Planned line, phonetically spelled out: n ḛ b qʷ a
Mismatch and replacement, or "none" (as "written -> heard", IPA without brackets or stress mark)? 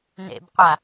none